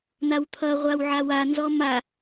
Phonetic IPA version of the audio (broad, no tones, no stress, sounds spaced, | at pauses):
n̪ a w t̪ʰ ʌ ʁʷ a w ʕ a w a n z ɔ m a